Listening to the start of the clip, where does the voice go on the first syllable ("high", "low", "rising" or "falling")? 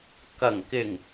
low